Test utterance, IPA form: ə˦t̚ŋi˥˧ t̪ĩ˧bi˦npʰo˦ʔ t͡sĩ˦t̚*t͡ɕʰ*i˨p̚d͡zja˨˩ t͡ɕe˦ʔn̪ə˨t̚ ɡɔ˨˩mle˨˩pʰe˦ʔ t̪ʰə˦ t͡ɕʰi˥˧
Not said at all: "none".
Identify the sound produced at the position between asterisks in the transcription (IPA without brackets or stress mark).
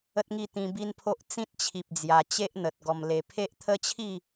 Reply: t͡ɕʰ